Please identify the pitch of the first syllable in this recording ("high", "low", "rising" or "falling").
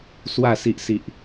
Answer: low